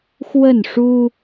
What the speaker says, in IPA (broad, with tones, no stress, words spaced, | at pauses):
xwə˥˨nʂu˦